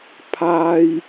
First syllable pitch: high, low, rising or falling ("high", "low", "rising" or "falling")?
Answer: high